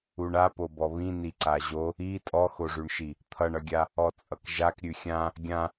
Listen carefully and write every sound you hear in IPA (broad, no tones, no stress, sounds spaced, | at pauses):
u ɳ a p o b ɔ β ĩ n i ǀ a ʑ o | i tʼ ɔ x o ʐ ʉ ɳ ʃ i | t̪ʰ ʌ ɳ ʌ ɡʲ a | ɔ t͡sʼ ʌ k ʒ a k ɾʲ ʉ xʲ ã | ɡʲ ã